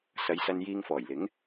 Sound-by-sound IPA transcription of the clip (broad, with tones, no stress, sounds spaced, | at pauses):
s ɐ˨˧ j s ɐ˧ n j iː˧ ŋ f ɔː˨˩ j l ɪ˨˥ ŋ